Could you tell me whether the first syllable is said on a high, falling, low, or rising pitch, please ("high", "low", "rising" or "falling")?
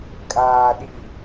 low